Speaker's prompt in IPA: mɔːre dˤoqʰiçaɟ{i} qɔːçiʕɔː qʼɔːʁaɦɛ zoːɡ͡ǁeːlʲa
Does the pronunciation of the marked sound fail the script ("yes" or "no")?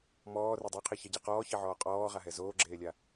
no